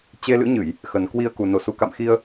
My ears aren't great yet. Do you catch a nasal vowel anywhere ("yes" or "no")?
no